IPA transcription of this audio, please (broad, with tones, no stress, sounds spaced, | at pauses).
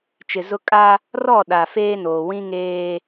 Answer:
t͡ʃ ɪ˨ z ʊ˦ kʼ a˦ | r ɔ˦˨ ɗ a˨ f eː˦ n oː˨ w ĩ˦ ŋ eː˦